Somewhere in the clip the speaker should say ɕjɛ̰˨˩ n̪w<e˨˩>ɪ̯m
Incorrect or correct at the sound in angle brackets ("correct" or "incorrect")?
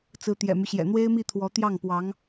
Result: incorrect